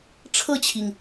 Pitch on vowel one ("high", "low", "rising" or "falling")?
falling